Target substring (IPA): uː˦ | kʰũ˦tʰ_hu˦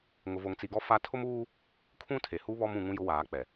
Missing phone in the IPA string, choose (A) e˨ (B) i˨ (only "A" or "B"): A